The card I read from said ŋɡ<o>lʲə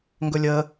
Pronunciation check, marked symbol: incorrect: ɵ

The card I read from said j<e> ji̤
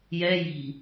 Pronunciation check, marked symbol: incorrect: ɛ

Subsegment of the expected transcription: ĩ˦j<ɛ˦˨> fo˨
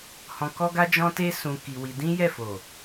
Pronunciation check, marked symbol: correct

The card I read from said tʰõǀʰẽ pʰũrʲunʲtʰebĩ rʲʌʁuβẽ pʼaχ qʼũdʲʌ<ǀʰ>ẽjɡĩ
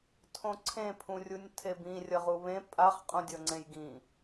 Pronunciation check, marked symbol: incorrect: ŋ͡ǀ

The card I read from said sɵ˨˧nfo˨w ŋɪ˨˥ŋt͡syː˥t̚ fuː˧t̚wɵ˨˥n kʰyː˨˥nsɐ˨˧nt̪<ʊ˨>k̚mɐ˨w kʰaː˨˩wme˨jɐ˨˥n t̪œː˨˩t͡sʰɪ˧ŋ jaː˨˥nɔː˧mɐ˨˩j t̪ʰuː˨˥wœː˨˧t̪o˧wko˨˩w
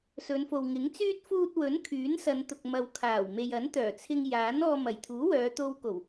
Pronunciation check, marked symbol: correct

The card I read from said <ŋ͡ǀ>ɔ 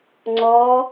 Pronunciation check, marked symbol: correct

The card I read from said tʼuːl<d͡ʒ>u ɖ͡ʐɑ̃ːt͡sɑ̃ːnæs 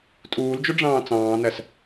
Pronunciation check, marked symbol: correct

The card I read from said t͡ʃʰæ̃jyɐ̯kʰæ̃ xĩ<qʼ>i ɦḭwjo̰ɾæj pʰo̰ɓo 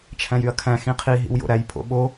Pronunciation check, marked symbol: incorrect: qʰ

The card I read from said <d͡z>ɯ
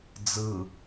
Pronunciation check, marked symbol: correct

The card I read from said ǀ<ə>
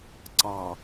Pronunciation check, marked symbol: incorrect: ɑ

